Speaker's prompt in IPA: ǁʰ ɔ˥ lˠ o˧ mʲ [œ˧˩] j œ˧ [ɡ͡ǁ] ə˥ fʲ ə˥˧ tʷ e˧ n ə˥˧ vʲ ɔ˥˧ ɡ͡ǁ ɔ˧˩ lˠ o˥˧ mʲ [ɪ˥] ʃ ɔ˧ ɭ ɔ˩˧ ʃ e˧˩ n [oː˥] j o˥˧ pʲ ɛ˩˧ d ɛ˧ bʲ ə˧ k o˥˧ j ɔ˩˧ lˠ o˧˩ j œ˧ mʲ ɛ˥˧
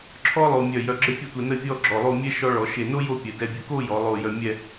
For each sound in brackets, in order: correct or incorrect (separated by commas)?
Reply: correct, correct, incorrect, incorrect